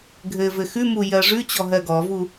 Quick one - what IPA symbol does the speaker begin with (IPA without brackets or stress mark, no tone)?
ɡʱ